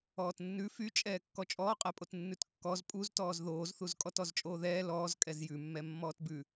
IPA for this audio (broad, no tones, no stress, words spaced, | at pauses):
ɔːtnːʉ fyt͡ʃʼɛː kːɔt͡ʃʼɔːqʼɛpʼot nːʉtkːɔz pʼuztɔːz ðoːzθuz kʼɔtɔzt͡ʃʼoːðɛː lɔːz kʼɛzjʉmːɛ mːɔːtbʉ